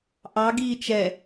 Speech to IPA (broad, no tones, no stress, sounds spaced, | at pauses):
ʔ ɑ ɡ iː t͡ʃ ɛ